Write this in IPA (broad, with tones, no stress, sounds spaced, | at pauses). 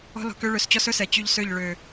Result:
ɔ̤˦ l ɔ̤˧ k ø˦ ɭ ø˧ s t͡ɕ ɔ˦ s ɵ˦ s ɛ˨ t͡ɕ y˧ ʎ s ø˦˨ ʎ ɭ ø˨